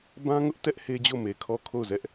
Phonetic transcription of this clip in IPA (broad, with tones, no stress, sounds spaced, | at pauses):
b ã˦ ŋ ʊ˦ ʔ t ɛ˦ ʔ h e˦ d͡ʑ o˦˨ m e˨ kʰ ɔ˦˨ kʰ o˦˨ ʊ̯ z ɛ˦ ʔ